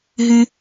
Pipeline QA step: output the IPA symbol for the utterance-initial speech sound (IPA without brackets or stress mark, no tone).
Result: ɦ